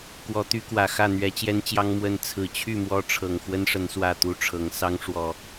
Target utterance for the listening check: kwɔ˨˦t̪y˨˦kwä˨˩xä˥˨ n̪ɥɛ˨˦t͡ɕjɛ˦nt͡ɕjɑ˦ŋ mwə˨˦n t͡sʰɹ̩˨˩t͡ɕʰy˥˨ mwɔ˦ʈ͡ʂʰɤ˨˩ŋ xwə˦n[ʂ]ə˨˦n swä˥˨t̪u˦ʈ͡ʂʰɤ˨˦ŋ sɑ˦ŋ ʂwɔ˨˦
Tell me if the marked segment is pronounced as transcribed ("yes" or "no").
yes